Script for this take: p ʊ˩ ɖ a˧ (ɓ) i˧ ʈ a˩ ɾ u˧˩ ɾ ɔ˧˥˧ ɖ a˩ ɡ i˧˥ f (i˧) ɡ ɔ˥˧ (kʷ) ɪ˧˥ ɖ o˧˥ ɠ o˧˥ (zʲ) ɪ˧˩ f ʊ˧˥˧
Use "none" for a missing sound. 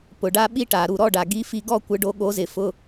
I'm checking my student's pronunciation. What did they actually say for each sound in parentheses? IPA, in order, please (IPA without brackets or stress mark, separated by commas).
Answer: ɓ, i˧, kʷ, z